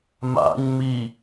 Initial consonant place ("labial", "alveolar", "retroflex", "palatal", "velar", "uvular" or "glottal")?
labial